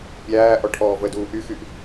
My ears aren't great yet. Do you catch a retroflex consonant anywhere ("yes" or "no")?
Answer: yes